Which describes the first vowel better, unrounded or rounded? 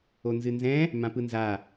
rounded